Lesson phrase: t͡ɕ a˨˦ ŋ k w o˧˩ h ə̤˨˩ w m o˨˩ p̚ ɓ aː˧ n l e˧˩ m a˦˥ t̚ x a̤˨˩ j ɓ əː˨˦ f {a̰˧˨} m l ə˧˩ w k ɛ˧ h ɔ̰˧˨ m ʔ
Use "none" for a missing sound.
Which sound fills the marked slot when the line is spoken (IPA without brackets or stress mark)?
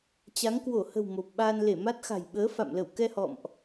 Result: a̰˧˨